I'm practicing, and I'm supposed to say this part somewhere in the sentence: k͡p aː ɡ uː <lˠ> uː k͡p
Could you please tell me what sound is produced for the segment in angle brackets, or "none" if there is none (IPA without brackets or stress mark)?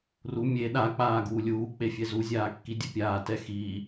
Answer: lʲ